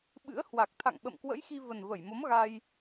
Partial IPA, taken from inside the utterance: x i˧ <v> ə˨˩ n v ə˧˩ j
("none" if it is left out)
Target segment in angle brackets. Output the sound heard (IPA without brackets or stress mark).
v